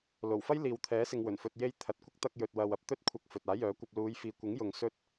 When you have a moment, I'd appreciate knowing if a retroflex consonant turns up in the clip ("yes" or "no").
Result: no